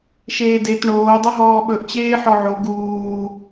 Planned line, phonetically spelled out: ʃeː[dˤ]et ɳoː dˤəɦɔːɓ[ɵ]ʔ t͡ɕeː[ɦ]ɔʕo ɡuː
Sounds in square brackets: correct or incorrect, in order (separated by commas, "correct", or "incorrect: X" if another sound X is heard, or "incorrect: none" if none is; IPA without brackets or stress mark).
incorrect: d, correct, incorrect: ħ